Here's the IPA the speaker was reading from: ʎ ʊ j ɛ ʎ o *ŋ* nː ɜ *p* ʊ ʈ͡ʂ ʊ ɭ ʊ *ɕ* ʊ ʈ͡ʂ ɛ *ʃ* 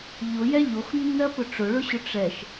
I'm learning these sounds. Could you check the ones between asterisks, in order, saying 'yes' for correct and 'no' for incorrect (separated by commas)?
no, yes, yes, yes